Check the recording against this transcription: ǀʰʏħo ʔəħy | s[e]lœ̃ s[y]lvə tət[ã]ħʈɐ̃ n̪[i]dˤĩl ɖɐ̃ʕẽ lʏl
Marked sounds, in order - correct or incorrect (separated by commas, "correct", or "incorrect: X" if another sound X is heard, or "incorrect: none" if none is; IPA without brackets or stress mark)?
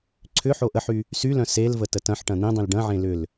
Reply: incorrect: y, incorrect: e, incorrect: ɐ̃, incorrect: ĩ